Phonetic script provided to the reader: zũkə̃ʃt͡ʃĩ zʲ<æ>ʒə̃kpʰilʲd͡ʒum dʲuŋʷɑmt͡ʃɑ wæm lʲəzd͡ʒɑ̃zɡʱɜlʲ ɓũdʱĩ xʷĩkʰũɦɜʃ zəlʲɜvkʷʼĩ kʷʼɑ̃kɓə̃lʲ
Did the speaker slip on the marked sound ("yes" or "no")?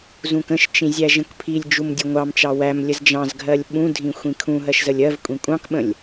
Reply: no